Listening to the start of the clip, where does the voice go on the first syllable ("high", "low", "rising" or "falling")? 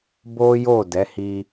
high